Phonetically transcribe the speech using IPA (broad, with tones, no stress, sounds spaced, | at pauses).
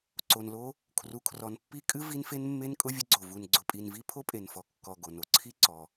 ǀ o˩ n l o˧ | kʰ r u˩ kʰ r ɔ˩ n pː i˧ kʼ ɨ˧ v i˧ n f e˧ n mː e˧ n kʼ ʊ˧ vʲ ə˧ ɡ͡ǀ o˩ v u˩ n ɡ͡ǀ ʊ˩ pʼ i˩ n v i˧ pʰ o˧ pʼ e˩ n f ɔ˩ kː ɔ˩ ɡ o˩ n o˩ ǀʰ i˧ ǀ ɔ˩